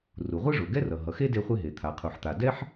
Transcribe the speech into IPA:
r u˩ ʁʷ ɯ˦ ʐ o˩ ɡ ɛ˦ r ʌ˩ ɦ ʌ˩ x e˦ d e˦ χʷ e˦ ɦ e˩ t̪ʰ a˩ qʰ u˩ ħ t̪ a˩ d ɛ˦ ħ

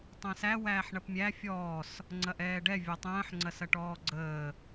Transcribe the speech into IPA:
tˤ ə̃ː s æ w æː ħ ɳ ɐ p mʲ æ fʲ ɔː s | ŋ͡ǀ ɐ ʔ ɛː ɖ ɛ vʲ ɔ tˤ ə̃ː ħ ŋ͡ǀ ɐ s ɐ ʈ ɔː ɡ͡ǀ əː

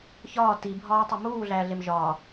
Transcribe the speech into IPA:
ç ɒː t i bʱ ɒː tˤ o m uː ɮ æː ɮ e m ʒ ɒː

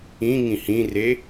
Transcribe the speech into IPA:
ĩ ŋ ĩ h ĩ r e

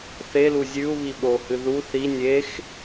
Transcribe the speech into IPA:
θ e l u zʲ ʉ u̯ β i ɓ o h ɨ ð u θ i nʲ e x

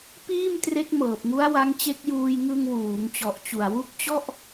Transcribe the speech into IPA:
p iː˥˩ m t r e˦˥ k̚ m ɤː˨˩ p̚ ŋ u˦˥ a̯ w a˦˥ ŋ t͡ɕ e˦˥ k̚ j uː˧ j ŋ ɯ˧ ŋ w uː˩˦ ŋ t͡ɕ ɔ˨˩ ʔ t͡ɕ u˨˩ a̯ w u˦˥ k̚ t͡ɕ ɔ˥˩ ʔ

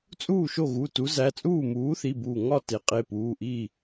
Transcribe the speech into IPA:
t͡sʼ uː˥˨ ʃ o˥˨ ɣ u˩˧˩ t u˨˥ z æ˩˧˩ t͡sʼ uː˥˨ m uː˨˥ θ i˩˧˩ b uː˧˩ ŋ ɒ˥˨ t e˨˥ qʼ e˩˧˩ p uː˩˧˩ ʔ iː˥˨

